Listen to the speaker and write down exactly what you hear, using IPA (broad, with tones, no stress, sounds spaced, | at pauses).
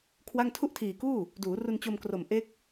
kʰ w a˥˩ ŋ tʰ u˥˩ ʔ tʰ iː˨˩ k uː˥˩ | d uː˩˦ r u˧ n t͡ɕ o˧ m k r o˨˩ m ʔ e˦˥ k̚